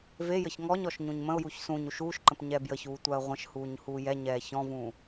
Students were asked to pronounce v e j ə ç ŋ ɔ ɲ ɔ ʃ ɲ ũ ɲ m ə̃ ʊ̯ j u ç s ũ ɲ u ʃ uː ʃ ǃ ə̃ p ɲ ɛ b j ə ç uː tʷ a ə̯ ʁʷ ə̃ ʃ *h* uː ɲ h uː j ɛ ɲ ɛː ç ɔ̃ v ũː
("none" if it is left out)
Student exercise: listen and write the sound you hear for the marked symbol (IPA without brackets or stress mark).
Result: h